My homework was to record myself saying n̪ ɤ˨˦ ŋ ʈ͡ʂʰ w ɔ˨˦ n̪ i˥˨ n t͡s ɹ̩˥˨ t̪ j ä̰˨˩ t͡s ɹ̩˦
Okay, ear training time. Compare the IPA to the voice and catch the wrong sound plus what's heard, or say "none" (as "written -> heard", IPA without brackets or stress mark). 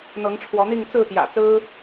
n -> ŋ